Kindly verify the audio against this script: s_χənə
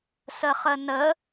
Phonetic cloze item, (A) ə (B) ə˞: A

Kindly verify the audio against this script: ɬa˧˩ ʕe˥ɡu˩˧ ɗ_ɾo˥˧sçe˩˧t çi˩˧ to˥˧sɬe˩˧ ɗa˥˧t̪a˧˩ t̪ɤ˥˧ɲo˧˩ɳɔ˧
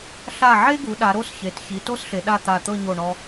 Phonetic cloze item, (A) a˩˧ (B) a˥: A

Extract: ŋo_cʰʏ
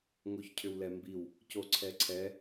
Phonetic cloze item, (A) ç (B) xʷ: A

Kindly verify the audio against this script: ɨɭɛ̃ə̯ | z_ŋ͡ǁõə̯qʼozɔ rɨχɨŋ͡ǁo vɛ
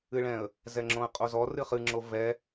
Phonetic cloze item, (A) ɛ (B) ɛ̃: A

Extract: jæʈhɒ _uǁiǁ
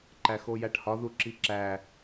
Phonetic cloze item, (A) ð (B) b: A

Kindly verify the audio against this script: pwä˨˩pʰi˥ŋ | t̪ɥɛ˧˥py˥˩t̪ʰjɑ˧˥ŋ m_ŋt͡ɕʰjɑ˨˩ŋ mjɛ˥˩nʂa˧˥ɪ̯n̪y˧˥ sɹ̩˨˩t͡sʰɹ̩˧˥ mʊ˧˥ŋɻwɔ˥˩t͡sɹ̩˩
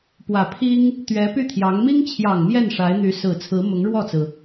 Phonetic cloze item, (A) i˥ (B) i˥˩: A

